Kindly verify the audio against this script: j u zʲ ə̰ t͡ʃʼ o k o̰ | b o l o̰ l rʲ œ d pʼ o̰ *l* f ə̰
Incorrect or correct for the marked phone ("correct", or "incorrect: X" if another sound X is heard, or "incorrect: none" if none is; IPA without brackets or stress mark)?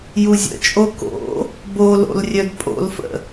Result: correct